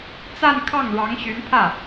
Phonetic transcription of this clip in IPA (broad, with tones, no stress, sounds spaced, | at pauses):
t͡s a˥˧ n kʰ ɑ˥˩ ŋ ɻ ɑ˧˥ ŋ ɕ y˧˥ n pʰ ä˥˩